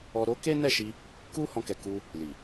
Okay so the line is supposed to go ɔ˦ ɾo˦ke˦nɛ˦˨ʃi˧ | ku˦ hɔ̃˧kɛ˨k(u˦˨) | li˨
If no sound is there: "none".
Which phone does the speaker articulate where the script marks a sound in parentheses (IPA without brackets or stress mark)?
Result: u˧